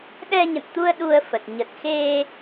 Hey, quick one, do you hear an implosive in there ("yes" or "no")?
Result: yes